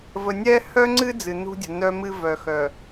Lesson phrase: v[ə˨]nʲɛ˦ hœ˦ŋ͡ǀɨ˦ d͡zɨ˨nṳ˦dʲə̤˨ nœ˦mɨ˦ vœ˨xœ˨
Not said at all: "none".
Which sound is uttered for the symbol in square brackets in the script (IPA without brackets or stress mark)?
ə˨